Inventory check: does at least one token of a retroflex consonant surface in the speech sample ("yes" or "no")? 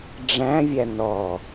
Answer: yes